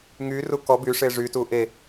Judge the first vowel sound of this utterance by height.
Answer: high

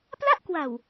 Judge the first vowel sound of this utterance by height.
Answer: low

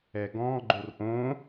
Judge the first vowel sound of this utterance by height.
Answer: mid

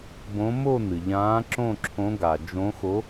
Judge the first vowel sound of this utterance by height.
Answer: mid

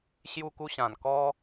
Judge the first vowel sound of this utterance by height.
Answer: high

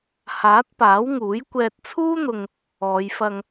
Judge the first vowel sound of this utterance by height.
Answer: low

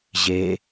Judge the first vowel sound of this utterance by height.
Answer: mid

